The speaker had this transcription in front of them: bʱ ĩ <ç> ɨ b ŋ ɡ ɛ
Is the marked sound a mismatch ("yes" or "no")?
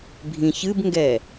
no